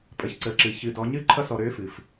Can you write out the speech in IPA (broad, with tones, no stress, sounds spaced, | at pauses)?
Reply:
pʼ ə˩˧ ç ǀ əː˩˧ ǁ ɨ˩˧ ç ɨ˧ d ɔ˧˥ ɲ ɨ˥ ǃʰ ʌ˥ s ɔ˧ ɾ øː˧˥ f ɨ˩ f